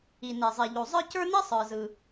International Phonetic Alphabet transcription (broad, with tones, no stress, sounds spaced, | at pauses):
i˩ n e˩ zˤ e˩ ʎ o˩ zˤ ə˞˥ c ə˞˥ n i˥ sˤ ə˞˩ z ɯ˩